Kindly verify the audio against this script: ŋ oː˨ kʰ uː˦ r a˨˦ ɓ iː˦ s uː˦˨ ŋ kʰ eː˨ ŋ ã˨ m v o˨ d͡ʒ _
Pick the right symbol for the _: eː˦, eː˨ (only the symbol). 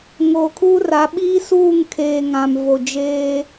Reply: eː˦